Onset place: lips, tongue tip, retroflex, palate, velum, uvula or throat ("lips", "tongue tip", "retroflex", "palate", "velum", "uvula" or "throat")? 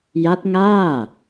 palate